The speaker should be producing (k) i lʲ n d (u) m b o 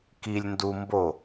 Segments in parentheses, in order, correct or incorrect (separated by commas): correct, correct